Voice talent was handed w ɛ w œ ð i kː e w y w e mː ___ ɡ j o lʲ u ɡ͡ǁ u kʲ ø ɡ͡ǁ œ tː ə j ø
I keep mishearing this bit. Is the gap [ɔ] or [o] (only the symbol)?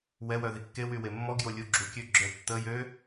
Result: ɔ